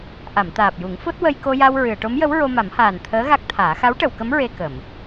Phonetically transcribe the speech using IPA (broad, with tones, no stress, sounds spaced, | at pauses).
ʔ a˨˩˨ m t̪ aː˨˩ p̚ j u˨˩˦ ŋ f o˦˥ t̚ w ə˧ j k o˧ j a˧ w ɹ ɨ˨˩˨ ə̯ ʈ o˧˥ m j ə˧˥ w ɹ o˧ m a˨˩˦ m h aː˨˩ n t̪ʰ əː˧˥ ɣ a˦˥ k̚ t̪ʰ aː˨˩˦ x a˧˥ w ʈ ə˨˩˨ w k ə˧˥ m ɹ e˧ k ə˨˩˨ m